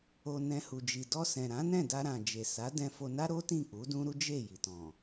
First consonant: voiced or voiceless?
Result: voiced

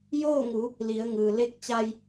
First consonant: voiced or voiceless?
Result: voiced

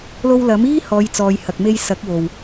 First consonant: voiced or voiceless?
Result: voiced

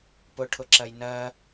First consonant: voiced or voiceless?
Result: voiceless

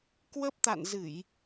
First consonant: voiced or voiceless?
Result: voiceless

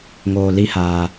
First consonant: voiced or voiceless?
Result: voiced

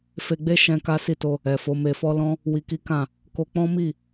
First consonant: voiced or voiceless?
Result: voiceless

